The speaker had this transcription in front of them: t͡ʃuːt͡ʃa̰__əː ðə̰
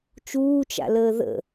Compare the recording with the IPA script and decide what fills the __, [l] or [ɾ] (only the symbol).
l